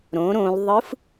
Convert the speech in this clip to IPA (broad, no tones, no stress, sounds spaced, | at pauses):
ɾ õ ɾ õ l ðˤ ɯ f